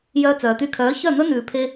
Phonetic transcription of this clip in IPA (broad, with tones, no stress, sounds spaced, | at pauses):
j œː˧ t͡s œː˨ t̪ y˧ kʰ œː˨˦ ç œ˦˨ n̪ ɵ˦ n ʉː˨ pʰ e˧